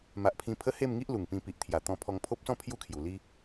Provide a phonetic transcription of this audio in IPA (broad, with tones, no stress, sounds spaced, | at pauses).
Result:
m a˨ ʔ pʰ ĩ˧ pʰ ə˦ h e˥˧ m ŋ i˦ ʔ l u˨˩ ŋ p ĩ˧ p i˨ ʔ t̪ʰ j a˨˩ t̪ ɔ̃˧ pʰ ɔ˧ ŋ pʰ o˦ p̚ s ɔ̃˥˧ pʰ j u˦ kʰ j u˨˩ l i˦